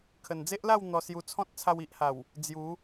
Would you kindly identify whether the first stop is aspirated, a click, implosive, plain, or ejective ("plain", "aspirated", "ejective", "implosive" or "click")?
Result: aspirated